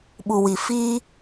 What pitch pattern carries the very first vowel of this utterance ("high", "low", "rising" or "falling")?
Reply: low